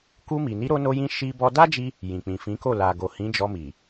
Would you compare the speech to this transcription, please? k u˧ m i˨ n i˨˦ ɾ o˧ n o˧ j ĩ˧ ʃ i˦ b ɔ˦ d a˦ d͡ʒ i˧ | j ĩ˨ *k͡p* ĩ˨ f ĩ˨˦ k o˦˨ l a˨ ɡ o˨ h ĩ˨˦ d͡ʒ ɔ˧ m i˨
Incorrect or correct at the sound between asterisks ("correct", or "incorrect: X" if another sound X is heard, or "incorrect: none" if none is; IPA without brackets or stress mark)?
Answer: correct